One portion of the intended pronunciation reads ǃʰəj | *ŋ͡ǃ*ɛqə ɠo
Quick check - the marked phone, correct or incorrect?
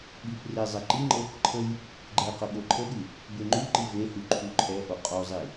incorrect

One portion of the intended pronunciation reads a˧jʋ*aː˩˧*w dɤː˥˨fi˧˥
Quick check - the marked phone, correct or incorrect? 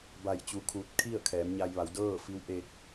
incorrect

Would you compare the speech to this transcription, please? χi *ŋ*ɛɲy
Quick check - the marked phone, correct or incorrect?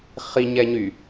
incorrect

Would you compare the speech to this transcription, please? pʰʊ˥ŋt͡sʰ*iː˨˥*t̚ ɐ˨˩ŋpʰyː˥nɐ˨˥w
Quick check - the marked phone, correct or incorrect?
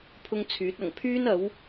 incorrect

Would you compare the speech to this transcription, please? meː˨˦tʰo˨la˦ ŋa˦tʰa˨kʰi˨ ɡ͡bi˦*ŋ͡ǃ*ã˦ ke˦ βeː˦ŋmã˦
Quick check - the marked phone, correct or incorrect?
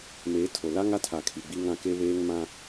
incorrect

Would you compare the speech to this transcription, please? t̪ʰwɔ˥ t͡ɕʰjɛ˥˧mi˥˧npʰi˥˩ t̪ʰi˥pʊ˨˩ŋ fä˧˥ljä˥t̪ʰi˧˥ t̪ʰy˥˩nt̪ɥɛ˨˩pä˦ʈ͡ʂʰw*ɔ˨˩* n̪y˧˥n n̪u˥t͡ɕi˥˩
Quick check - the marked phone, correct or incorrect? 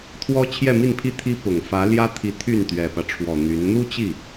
correct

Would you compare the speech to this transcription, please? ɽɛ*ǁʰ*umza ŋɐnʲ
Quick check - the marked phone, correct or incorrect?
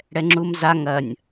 incorrect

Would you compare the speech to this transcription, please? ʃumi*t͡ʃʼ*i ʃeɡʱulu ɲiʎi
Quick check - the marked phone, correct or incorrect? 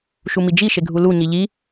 incorrect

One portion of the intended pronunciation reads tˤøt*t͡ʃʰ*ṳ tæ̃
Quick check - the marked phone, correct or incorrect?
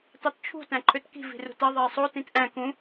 correct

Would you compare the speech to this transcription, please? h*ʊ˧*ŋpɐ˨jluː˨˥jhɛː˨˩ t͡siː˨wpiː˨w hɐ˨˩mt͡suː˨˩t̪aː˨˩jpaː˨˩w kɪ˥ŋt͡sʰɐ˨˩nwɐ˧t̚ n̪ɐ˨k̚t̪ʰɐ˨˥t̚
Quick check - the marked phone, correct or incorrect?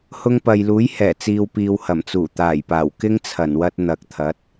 correct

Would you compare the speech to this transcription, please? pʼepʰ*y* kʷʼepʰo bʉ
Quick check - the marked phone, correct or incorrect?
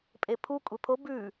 incorrect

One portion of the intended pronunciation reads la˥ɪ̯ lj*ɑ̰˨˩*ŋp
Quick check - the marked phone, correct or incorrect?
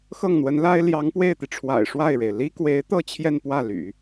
incorrect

